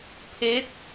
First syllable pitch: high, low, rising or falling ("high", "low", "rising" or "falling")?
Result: rising